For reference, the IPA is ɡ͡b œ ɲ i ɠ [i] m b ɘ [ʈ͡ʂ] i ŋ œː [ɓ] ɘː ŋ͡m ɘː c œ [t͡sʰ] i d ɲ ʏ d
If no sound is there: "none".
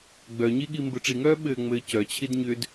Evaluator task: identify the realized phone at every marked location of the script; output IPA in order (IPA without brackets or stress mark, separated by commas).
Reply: i, ʈ͡ʂ, ɓ, t͡ɕʰ